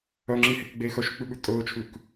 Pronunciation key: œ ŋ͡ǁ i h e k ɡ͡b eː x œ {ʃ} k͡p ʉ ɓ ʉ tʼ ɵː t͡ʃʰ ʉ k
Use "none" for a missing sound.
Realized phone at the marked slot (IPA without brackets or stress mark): ʃ